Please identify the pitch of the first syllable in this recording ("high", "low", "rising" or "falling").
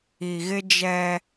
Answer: low